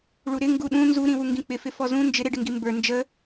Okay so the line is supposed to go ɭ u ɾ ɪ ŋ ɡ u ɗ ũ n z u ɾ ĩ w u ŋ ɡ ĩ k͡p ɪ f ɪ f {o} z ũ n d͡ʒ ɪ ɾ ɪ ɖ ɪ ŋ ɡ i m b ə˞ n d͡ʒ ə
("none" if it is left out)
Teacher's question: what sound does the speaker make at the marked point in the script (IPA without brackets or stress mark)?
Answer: ɔ